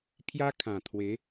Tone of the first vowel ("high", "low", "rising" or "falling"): high